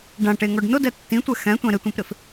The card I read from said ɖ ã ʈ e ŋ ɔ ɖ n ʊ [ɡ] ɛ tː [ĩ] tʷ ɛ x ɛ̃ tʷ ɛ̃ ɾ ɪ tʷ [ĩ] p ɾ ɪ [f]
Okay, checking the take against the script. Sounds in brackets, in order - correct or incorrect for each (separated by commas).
incorrect, correct, incorrect, correct